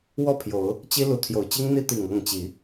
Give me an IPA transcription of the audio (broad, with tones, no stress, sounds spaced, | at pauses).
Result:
w ɔ˥˨ pʰ j o˨˦ ʊ̯ | t͡ɕ i˦ l u˨˦ t̪ʰ j o˨˩ ʊ̯ t͡ɕ i˦ ŋ n̪ i˦ t̪ i˨˩ ŋ ɤ˥˨ ŋ t͡ɕ i˨˦